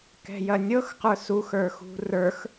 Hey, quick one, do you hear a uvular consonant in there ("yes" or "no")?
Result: yes